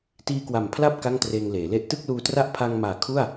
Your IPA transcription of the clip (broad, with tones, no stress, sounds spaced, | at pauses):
t iː˧ k w a˨˩ m pʰ l a˥˩ p̚ k a˥˩ ŋ t r eː˧ ŋ l eː˩˦ l e˥˩ ʔ t ɯ˥˩ k̚ l uː˧ t r a˥˩ ʔ pʰ a˧ ŋ m aː˨˩ kʰ u˥˩ a̯